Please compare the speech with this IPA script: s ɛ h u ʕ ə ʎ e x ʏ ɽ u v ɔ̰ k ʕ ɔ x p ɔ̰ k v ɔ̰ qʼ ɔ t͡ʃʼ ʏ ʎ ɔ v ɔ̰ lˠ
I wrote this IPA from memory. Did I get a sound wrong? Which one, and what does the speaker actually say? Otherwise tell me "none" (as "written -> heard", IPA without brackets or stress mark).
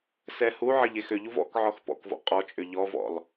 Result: ɽ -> ʎ